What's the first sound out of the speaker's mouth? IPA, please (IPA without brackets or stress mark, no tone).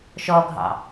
ʃ